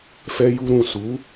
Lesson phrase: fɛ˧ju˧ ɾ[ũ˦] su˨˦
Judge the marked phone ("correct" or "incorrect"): incorrect